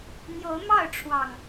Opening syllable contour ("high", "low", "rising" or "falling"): rising